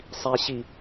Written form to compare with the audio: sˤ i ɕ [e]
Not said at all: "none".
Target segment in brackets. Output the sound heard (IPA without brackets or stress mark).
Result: i